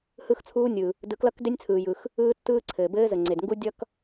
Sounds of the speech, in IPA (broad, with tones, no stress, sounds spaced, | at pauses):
h ɯ˥ x t͡sʰ uː˥ nʲ ɯ˩ | d ɯ˧ k l ʌ˥ k d e˥ nʲ t͡sʰ ɯː˩ j ɯ˩ x | ɯː˥ tː ɯː˥ ǀʰ ɘː˩ b ɘː˥ z ə˩ ŋ͡ǀ e˩ d ŋ ɡ u˥ dʲ ʌ˥ k